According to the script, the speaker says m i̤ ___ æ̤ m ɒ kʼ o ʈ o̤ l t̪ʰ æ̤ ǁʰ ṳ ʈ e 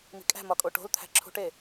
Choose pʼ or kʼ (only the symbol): kʼ